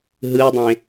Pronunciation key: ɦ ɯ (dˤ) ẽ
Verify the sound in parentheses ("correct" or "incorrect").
correct